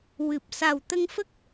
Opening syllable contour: low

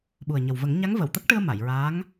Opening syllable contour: low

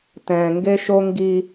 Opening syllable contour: low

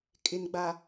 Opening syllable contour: low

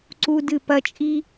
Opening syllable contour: high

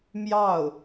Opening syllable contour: falling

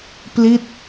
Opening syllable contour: falling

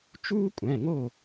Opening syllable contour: high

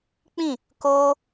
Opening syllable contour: falling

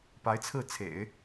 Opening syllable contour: rising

